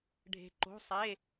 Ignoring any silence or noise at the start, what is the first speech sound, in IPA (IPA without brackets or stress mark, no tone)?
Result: ɖʱ